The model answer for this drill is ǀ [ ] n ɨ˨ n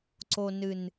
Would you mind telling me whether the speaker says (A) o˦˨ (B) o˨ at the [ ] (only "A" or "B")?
B